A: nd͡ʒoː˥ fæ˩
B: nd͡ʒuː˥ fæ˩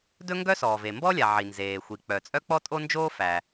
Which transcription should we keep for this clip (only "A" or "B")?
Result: A